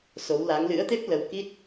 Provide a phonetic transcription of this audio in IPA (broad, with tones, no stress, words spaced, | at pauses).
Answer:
so˨˦wla˨˦ŋ lɨ̰˧˥ə̯t̪e˦˥p̚ lə˧wki˦˥t̚